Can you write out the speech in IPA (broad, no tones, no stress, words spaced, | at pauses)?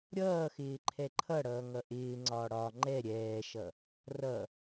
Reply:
ɾʲʌː xɪːǃʰɛǃʰʌɽʌː ŋʌʔɪːŋ͡ǀɒː ɽɒ ŋ͡ǃɛ ɾʲɛːʃʌ | rʌ